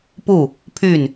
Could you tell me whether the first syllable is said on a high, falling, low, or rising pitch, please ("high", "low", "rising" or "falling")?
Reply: falling